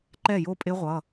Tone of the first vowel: falling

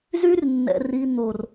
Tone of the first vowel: high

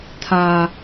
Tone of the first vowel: high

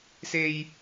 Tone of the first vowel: high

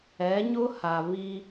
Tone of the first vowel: rising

